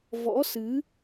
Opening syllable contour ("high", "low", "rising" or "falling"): rising